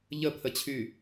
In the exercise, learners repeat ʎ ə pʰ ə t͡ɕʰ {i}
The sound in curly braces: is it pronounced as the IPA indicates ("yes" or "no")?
no